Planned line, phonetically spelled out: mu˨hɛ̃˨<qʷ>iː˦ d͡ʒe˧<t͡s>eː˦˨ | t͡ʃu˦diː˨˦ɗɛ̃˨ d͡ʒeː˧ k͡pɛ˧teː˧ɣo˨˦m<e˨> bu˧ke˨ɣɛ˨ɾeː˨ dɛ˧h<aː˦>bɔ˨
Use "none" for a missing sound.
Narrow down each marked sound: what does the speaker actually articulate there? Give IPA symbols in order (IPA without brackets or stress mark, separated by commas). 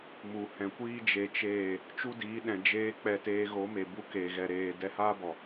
kʷ, t͡ʃ, e˨, aː˦